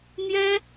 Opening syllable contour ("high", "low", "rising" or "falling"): high